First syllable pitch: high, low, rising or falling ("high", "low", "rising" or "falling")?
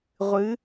rising